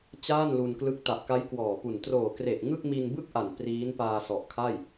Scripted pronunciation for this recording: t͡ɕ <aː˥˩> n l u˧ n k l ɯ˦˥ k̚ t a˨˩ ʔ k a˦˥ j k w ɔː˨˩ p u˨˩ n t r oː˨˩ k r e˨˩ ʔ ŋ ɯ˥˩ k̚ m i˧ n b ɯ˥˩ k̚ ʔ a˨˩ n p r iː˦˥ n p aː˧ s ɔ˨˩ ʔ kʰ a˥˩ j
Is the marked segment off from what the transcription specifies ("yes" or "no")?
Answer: no